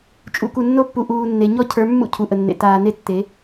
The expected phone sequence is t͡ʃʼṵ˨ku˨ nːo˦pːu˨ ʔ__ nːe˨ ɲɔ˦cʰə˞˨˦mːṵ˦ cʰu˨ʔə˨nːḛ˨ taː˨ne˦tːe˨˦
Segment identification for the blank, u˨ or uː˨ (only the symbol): uː˨